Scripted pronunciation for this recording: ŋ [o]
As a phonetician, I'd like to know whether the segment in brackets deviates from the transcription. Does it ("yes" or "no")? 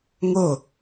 no